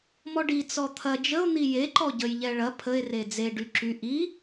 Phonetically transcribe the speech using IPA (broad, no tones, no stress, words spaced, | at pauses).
mɔɖi t͡sɔt̪ʰɐ d͡ʒəo̯ n̪ije ǃɔɟəj ʎɛɭɐ pʰəe̯ red͡ze ɖyǁy ʔi